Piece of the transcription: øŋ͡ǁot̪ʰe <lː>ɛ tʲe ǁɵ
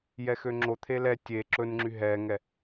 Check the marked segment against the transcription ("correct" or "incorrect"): incorrect